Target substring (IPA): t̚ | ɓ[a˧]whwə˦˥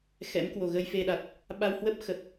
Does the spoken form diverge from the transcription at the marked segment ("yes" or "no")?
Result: no